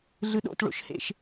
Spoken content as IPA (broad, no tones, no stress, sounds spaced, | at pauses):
ɮ ɯ ɗ o̰ t ɭ o̰ ʃ h ḛ ʃ